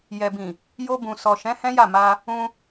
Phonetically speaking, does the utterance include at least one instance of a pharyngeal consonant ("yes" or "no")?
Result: no